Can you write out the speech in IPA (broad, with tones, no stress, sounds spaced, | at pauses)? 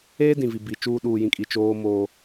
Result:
eː˦ d ĩ˨ v i˨ b i˨ t͡ʃ uː˦ ɗ uː˨ j ĩ˨ kʼ i˨ t͡ʃ oː˦ m oː˦